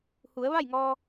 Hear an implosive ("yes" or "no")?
no